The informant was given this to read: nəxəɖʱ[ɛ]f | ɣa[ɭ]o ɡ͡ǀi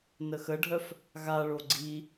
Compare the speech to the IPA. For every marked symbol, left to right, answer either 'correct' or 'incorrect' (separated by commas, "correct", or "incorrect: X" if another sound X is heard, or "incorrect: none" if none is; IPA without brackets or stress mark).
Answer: incorrect: œ, correct